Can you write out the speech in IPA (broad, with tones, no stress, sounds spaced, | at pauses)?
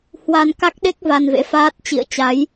h w a˧ n k a˦˥ k̚ ɗ e˦˥ k̚ v a˧ n v ḛ˧˥ f aː˦˥ t̚ t͡ɕ ḭ˧˨ ə̯ t͡ɕ a˨˦ j